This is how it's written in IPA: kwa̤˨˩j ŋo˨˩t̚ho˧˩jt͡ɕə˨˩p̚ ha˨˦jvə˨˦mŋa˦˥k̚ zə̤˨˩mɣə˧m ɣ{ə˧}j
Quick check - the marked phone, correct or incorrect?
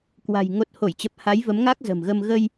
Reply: correct